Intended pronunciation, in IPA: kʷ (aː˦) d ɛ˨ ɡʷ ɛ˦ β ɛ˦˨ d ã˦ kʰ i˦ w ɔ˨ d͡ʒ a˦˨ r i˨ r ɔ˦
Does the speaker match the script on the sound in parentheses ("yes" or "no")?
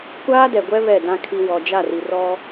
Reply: yes